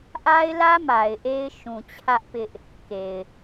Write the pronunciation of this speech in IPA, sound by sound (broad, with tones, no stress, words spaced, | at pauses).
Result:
ʔa˦ɪ̯lä˦ ma˨ɪ̯ʔe˦ɪ̯ ʃũ˨ t͡ɕʰä˦ʔpɪ˦ʔ | ke˨ɪ̯